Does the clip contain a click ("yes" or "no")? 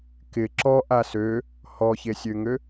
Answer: yes